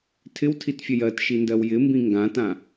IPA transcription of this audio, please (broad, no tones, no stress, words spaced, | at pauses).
tʰɪwtʰitfʲɐj ɜtʃindɜw jɪmbĩ ŋɡãtã